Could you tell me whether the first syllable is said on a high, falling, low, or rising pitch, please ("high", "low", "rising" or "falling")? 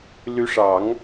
rising